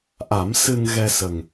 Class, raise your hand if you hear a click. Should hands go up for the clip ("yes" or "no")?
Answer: no